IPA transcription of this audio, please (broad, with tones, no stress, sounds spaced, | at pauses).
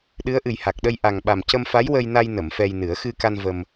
ɗ ɨ˧˥ ə̯ ʔ ɨ˨˩ j h a˨˩ k̚ ɗ ə˧ j ʔ a˨˩ ŋ ɓ a˨˩ m c ə˧ m f a˧˥ j w ə˧ j n a˧ j n ə˨˩˨ m f ɛ˧ j n ɨ˨˩˦ ə̯ x ɨ˧ k a˧ n v ə˧ m